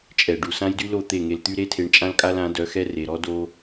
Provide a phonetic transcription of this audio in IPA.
t͡ʃʼ ɛ˨ ɖ u˨ s ã˦ j d y˦ l o˦˨ t̪ e˦˨ ŋ e˧ l t̪ y˦ ɾ e˦ tʰ e˧ ɳ t͡ʃʼ ã˦ l kʼ a˦ l ã˨˦ d œ˨˦ x ɛ˦ r e˨ ɾ ɔ˦ d o˦

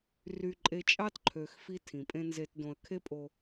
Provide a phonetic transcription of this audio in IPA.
r y˨ ǃʼ e˨ t͡ʃʼ ɑ˦ t ǃʰ ø˨ x f i˦ tʰ ĩ˨ pʼ ẽ˦ n z e˨ t d õ˨ ə̯ kʰ e˦ pʼ o˦

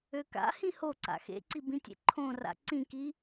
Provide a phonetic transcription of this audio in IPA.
ø k a̰ h ĩ h o ǀ a̰ x ḛ ǀ i b ĩ tʲ ḛ ǃʰ õ r a̰ ǀ ĩ k i

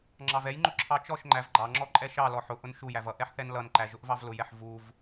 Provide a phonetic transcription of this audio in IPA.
ŋ͡ǁ ɑ v ɛ j ŋ͡ǃ ʊ ǁʰ ɑ t͡ʃ ɔ ʃ ŋ͡ǃ æ v ɡ͡ǃ ɑ ŋ͡ǁ ɔ ǃʼ ɛ ʃ ɑ l ɔ ħ ʊ ʔ ʊ n ʃ u j æ v ʌ ʔ ɛ ħ θ ɛ n l ʌ n ǃ æ ʒ ʊ ʔ v ɑ v l ʊ j ɛ ħ v u v

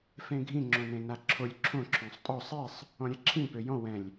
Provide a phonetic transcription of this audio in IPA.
f ẽ ɡʱ ĩ ŋ͡ǁ õ n ẽ n a ǁʰ o lʲ ǁʰ õ ǁʰ õ sˤ tʼ ɔ sˤ e sˤ | ɔ̃ ɾʲ ɛ ǁʰ ĩ p ø j ɔ̃ w ɛ̃ lʲ

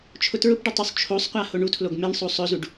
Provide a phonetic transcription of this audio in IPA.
t͡ʃʰ ʊ t ɹ ʊ p ɖ ʊ tˤ u sˤ t͡ʃʰ o sˤ qʷ a h o ɳ u tʰ l o ɡ m e ɳ sˤ o sˤ ɵ z u ɖ

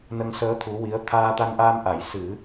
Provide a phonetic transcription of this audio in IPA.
n ə˧ ŋ s əː˧˥ t̪ʰ u˧˥ w i˧˥ ə̯ t̪ʰ aː˧ t̪ a˧ n ʔ aː˧ m ʔ a˨˩˨ j s ɨ˨˩˦

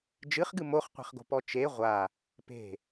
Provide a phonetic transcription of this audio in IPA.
d͡ʒ ɨ χ ɡ ɨ m o χ qʷ e̤ χ ɡ o̤ p ɔ t͡ʃ e ʁʷ a | p e̤

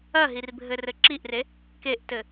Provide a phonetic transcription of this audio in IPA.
ɐ ɦ i r bʱ ɘ r ɘ ǁ i ʔ r e | k e ʔ t ɘ

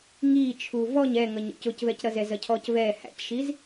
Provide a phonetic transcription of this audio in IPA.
ŋ iː t͡ʃʰ u v ɔ ɲ ɛ ŋ ʌ ɲ ɔ̰ c ʊ c v ɛ c ɾ ʌ z ɛ z ʌ cʰ ɔ c v ɛː h æ̰ c ʃ i z

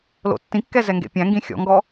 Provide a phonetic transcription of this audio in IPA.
l o̰ tː ĩ kː ɛ z ɛ ŋ ɡ ḛ pʲ æ̃ ŋ ɡ ĩ xʲ ɔ̰ ŋ ɡ ɔ

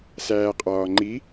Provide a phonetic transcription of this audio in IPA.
s æː qʼ ɒː ŋ͡ǃ i

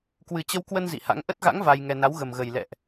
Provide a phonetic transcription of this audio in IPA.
k w ɨ˨˩ t͡ɕ ə˧ w k w ə˧ n z ḭ˧˨ h a̰˧˥ ŋ ʔ ə˦˥ t̚ ɣ a̰˧˥ ŋ v a˧ j ŋ ɛ˧ n a˨˦ w ɣ ə˨˩ m ɣ ə˨˩ j l ɛ̰˧˨ ʔ

